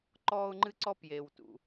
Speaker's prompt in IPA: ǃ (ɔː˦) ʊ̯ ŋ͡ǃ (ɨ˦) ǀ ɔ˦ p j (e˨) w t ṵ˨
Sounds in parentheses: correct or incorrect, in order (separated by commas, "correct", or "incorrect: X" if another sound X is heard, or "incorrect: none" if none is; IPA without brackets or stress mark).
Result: correct, correct, correct